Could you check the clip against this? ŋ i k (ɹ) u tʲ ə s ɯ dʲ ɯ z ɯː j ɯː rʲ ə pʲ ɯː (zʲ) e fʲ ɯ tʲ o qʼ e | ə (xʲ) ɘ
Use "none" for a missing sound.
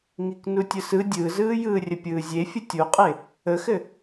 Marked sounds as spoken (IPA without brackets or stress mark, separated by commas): n, zʲ, x